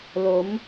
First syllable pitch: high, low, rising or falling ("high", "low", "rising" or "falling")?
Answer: rising